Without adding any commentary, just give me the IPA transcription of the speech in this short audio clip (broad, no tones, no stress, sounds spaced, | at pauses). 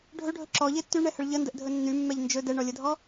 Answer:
ɖʱ ɵ ɖʱ ɵ ǁ ɔ ʎ e tː y ɳ ɛ h ə ɭ ʎ ə n d ə ʔ dʱ ɵ nː y mː ɛ ʎ n d͡ʒ ɵ d ɛ ɳ ɔ lʲ ə dʱ ɔ